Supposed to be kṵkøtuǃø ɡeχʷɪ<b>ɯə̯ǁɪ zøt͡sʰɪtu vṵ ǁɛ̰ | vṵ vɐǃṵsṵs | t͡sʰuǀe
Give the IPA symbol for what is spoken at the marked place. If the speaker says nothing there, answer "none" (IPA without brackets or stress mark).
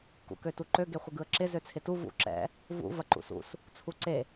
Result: ɡ